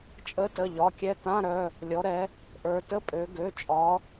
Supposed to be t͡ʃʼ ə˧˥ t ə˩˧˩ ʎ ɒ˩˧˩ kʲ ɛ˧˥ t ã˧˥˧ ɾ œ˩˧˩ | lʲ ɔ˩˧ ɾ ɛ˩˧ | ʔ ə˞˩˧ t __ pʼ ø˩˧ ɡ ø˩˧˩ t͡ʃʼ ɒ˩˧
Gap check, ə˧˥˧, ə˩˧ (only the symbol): ə˧˥˧